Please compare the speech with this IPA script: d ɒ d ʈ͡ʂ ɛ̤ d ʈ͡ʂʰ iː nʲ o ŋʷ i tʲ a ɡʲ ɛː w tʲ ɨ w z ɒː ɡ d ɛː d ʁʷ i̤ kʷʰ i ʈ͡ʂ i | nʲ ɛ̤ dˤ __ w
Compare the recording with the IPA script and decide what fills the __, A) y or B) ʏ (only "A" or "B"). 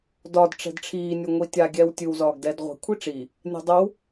B